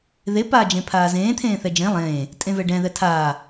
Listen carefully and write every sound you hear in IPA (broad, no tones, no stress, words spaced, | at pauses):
ðe paːd͡ʒẽpʰaːzẽː t̪ʰẽːθɛd͡ʒẽ lˠẽː | tʼẽvɛɖɛ̃ ðɛtʰaː